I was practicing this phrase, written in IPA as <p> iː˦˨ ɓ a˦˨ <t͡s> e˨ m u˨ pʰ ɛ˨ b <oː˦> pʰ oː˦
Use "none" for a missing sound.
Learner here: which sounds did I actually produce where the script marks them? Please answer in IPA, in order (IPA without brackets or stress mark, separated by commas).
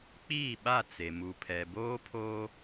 k͡p, t͡s, oː˦